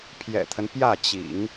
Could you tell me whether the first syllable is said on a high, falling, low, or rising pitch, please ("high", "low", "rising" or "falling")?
low